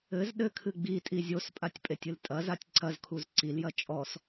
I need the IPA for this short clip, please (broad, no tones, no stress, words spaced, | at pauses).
ɘz ɗɘkʰɨ ɡ͡bitʼi zʲospʼatʲpʼetʲɨl tʼɐzatʲ ǀɐzkʰuz ǀiljɐ t͡ʃʼɔs